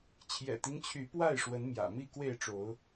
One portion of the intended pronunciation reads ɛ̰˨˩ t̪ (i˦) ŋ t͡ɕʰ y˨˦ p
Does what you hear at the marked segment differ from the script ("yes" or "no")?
no